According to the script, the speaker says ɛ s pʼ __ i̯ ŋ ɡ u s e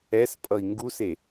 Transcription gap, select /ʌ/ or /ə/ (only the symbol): ʌ